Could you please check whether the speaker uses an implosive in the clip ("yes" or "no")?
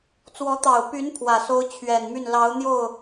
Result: no